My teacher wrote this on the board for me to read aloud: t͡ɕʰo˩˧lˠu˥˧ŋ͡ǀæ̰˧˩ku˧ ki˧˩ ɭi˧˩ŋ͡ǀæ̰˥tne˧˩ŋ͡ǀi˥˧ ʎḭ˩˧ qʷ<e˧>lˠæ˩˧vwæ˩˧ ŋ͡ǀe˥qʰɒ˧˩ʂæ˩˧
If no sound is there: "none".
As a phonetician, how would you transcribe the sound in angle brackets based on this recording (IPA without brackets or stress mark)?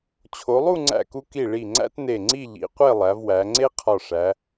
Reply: e˥˧